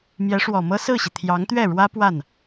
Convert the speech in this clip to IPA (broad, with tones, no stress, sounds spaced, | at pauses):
m j ɛ˧˥ ʂ w ɔ˨˩ m ɤ˥ s ɹ̩˥˩ ɕ i˩ t̪ʰ j ɑ˧˥ ŋ t̪ ɥ ɛ˥˩ ɻ w ä˥ p w a˥˩ n